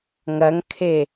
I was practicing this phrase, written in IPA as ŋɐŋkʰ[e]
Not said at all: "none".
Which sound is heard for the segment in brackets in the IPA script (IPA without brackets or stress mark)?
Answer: e